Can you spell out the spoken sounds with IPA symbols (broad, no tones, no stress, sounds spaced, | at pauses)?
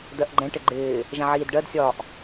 d ɜ ʔ ɡ͡ǃ ɛ̃ ʈ ɪ ɡ͡ǃ ɪː | ʒ ɛ̃ ʕ iː d ɖ ɜ d sʲ ɒː ʔ